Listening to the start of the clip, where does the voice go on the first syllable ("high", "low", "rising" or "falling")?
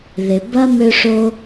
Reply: low